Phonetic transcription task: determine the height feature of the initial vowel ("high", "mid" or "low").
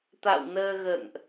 low